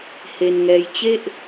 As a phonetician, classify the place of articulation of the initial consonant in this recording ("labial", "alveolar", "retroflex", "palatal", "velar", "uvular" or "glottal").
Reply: glottal